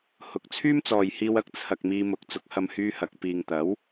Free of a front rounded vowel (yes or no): no